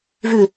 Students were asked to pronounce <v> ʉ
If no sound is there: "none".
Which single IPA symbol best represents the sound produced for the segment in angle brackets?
v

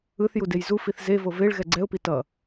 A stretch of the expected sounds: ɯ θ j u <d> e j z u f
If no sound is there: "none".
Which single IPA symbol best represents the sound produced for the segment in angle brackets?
d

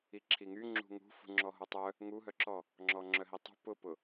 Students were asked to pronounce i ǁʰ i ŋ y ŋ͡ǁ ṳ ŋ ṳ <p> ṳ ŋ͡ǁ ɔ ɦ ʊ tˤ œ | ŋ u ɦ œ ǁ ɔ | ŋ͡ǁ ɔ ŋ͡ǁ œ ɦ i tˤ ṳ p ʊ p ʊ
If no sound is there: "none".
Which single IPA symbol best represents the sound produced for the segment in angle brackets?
f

